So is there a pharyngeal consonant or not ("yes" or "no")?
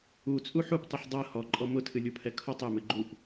yes